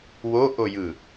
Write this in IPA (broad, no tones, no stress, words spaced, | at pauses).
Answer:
woʔojɯ